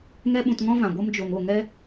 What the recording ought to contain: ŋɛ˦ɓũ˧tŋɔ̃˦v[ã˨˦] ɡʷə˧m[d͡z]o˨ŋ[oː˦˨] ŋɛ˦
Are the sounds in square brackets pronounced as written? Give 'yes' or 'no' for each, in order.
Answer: no, no, no

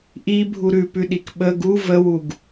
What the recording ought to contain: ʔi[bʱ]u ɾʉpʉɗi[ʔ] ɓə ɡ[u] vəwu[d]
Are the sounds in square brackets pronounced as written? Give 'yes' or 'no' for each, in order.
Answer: yes, no, yes, no

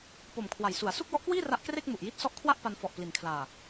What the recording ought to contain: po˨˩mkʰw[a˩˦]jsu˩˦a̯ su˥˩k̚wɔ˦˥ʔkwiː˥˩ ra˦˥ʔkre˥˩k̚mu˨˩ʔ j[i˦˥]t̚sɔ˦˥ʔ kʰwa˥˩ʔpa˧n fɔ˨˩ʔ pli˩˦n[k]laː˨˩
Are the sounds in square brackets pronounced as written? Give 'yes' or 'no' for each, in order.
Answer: yes, yes, no

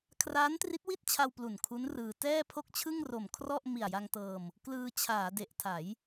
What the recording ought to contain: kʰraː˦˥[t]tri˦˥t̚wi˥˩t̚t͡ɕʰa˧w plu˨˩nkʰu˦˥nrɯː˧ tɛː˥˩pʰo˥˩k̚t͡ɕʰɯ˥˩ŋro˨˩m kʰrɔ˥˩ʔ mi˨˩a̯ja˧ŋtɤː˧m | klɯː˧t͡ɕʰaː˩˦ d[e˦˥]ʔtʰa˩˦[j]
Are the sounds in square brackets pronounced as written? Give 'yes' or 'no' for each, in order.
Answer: no, no, yes

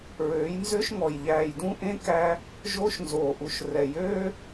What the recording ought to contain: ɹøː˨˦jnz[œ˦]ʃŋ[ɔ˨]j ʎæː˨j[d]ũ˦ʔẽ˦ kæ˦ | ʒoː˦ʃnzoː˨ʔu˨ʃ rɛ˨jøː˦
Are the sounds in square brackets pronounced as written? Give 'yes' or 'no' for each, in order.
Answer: no, yes, yes

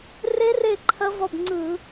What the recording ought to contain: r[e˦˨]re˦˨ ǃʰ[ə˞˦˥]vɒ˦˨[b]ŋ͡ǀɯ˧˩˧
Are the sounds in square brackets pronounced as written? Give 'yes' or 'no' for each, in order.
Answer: no, no, yes

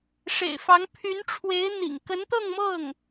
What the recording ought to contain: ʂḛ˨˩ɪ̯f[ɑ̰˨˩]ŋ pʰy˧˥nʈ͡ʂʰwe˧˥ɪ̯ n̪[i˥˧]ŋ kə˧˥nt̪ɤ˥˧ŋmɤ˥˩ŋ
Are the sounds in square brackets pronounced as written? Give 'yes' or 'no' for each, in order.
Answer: no, no

